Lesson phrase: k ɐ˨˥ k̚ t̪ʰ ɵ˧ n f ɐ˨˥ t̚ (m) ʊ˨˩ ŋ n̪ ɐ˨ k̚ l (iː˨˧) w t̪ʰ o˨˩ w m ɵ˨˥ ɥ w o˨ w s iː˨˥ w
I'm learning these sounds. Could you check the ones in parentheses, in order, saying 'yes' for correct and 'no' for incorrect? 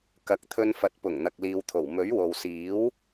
no, no

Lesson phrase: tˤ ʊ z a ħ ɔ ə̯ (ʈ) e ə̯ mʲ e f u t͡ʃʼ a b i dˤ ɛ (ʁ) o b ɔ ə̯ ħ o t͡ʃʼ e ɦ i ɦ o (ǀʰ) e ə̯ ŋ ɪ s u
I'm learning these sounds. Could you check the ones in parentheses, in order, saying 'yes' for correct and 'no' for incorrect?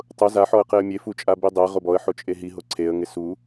no, yes, yes

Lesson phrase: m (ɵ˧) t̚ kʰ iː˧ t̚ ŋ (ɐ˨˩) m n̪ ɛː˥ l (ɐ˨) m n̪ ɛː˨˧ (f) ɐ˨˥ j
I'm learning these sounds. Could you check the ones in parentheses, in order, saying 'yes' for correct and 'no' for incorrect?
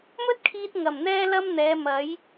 no, yes, no, no

